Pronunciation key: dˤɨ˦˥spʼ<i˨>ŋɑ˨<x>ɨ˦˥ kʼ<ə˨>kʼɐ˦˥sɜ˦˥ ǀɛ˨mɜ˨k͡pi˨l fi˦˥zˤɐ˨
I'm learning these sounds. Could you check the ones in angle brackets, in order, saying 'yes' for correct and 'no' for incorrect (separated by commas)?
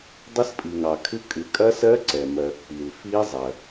yes, no, no